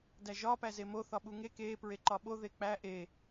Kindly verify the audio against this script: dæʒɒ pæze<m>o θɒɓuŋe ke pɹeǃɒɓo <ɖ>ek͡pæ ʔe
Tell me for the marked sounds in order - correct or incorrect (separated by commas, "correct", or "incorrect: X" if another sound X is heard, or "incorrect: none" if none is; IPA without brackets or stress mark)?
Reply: correct, incorrect: ð